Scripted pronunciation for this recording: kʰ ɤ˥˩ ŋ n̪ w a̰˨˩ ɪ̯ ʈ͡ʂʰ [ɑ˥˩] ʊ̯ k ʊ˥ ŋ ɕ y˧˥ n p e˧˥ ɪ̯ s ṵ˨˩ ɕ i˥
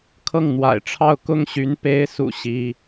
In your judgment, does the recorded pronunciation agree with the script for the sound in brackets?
yes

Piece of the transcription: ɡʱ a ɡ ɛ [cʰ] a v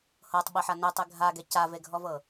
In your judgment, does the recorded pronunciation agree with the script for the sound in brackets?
no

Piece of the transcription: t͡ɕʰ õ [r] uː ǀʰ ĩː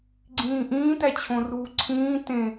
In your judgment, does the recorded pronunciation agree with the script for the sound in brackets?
yes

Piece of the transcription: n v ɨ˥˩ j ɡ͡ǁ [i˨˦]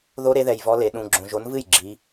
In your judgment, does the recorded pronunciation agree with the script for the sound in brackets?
yes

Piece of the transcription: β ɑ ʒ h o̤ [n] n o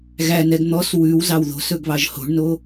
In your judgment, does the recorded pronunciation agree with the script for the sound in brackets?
no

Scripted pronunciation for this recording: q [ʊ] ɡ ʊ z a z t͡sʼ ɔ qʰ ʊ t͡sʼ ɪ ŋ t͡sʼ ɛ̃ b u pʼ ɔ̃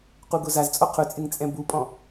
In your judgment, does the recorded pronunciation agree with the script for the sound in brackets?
no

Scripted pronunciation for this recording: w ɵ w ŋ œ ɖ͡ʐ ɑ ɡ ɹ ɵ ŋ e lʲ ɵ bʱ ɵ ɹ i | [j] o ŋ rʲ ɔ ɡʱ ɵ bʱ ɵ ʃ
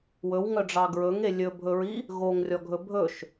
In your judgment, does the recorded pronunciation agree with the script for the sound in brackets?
no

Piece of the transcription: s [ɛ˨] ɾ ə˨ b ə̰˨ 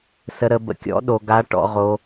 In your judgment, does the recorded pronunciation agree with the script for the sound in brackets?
no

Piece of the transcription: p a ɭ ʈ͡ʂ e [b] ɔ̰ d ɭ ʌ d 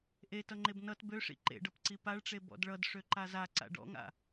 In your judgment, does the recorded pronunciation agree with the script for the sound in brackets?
yes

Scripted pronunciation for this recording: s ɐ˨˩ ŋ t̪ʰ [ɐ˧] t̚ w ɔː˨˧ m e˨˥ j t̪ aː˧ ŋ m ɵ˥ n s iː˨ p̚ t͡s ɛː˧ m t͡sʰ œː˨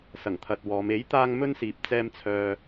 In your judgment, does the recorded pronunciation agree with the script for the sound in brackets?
no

